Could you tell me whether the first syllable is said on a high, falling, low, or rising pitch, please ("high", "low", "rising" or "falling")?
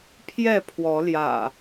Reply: falling